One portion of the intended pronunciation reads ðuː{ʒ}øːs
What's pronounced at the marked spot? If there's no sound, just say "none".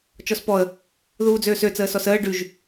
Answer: d͡z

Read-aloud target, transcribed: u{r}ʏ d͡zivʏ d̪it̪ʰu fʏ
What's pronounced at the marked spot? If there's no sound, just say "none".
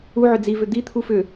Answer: ʕ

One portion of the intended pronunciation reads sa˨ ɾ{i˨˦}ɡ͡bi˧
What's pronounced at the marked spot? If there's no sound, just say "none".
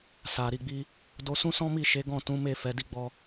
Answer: i˨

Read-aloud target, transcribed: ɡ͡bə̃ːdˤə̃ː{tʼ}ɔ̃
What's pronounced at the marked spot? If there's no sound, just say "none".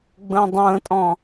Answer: tʼ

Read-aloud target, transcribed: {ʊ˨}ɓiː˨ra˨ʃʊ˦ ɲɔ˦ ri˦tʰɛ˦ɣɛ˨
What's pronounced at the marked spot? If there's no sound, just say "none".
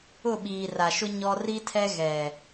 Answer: ʊ˦˨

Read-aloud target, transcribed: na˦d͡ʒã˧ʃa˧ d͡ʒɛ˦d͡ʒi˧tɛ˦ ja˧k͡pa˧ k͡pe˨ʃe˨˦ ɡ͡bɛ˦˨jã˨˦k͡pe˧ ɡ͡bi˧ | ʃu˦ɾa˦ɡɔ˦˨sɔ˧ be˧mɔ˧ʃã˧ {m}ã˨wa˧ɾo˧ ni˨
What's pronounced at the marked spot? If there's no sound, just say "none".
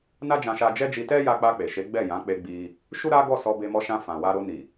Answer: f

